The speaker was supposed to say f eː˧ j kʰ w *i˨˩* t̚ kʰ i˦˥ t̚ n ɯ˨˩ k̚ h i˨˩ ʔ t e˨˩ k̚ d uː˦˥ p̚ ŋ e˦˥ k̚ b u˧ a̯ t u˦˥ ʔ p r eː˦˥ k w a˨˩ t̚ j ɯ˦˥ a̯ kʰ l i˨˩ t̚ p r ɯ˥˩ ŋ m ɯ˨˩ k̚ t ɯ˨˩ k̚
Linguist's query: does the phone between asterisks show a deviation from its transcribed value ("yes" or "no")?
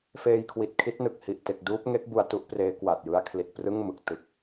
no